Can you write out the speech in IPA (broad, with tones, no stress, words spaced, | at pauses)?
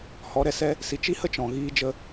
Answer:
hɔ˨˦ɾɛ˧sɛ˦ | si˧ t͡ʃi˦hə˦ t͡ʃɔ̃˨ ɣiː˧d͡ʒə˧